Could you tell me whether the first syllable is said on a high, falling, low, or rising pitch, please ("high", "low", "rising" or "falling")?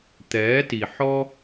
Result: rising